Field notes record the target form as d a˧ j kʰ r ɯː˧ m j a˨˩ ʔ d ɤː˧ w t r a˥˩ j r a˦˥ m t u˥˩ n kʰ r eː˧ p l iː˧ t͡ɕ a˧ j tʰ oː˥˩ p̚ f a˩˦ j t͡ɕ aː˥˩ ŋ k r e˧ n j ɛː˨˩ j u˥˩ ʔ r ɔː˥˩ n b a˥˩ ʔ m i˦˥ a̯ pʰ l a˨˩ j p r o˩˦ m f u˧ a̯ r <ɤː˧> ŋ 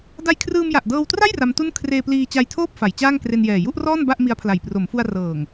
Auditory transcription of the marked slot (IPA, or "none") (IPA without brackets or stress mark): ɤː˨˩